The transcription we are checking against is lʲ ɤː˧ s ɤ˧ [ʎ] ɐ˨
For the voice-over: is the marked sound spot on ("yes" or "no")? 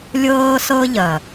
yes